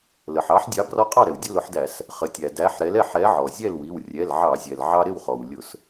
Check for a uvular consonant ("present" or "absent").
present